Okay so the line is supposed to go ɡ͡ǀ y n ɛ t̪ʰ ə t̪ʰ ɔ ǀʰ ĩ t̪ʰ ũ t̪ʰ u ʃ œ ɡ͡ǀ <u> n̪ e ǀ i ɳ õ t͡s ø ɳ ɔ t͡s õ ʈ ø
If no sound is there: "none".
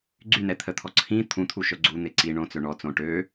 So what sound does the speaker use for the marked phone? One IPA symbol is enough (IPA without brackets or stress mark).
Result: u